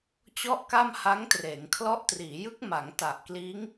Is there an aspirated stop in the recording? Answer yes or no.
yes